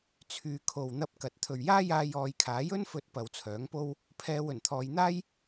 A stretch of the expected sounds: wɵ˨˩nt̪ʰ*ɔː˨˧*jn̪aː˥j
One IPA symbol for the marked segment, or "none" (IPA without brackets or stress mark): ɔː˨˧